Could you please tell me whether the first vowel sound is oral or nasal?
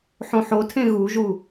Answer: nasal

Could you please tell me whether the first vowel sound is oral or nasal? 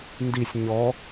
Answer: oral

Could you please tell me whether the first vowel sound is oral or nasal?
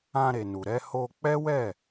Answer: nasal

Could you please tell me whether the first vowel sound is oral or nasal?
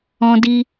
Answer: nasal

